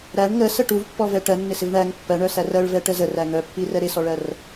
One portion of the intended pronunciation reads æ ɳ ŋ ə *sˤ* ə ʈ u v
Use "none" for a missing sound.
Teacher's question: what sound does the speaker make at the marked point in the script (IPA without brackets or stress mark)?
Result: s